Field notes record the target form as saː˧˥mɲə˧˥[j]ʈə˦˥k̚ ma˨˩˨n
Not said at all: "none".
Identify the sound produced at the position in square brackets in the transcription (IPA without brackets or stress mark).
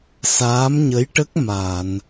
j